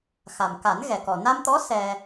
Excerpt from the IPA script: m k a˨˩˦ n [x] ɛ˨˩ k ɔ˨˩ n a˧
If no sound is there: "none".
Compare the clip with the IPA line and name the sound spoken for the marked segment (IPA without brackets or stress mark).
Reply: ɣ